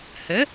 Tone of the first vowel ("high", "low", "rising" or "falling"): rising